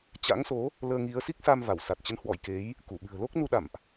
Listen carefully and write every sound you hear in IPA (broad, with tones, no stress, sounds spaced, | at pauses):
t͡ɕ a̰˧˥ ŋ s o˨˦ | l əː˧ ŋ i˨˦ ə̯ s i˦˥ k̚ s a˧ m v a˧˩ w s a˨˩ t̚ t͡ɕ ə˨˦ n h w ɔ̰˧˨ j k e˨˦ j | k u˧˩ ɓ ɨ̤˨˩ ə̯ l o˦˥ k̚ n u˧ ɗ a̰˧˨ m ʔ